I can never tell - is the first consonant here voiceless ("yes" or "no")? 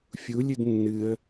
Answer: yes